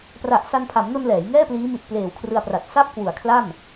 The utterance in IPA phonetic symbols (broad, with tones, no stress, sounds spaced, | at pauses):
p r a˨˩ ʔ s a˧ n pʰ a˩˦ m n o˧ n l ɛː˩˦ j ŋ ɛː˥˩ p l iː˦˥ m i˨˩ t̚ p l eː˨˩ w kʰ r ɯ˧ a̯ p r a˨˩ t̚ s a˥˩ p̚ k w u˨˩ a̯ kʰ l a˥˩ m